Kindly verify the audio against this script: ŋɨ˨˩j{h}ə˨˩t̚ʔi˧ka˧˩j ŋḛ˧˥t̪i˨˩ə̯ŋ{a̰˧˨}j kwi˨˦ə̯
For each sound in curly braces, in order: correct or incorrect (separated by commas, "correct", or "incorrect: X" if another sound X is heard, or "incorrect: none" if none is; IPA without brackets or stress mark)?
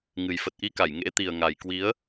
incorrect: f, incorrect: a˨˩